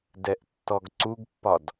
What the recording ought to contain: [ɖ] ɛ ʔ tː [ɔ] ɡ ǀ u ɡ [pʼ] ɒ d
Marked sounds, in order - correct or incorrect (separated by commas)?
incorrect, correct, incorrect